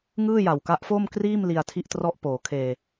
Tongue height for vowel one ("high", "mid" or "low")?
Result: high